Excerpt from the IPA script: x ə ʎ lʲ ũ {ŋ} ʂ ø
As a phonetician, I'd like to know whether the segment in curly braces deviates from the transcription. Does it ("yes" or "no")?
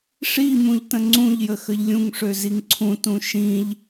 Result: no